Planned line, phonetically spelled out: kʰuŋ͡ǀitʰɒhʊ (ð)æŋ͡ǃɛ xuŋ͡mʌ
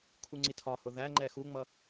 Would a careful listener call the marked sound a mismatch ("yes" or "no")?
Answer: no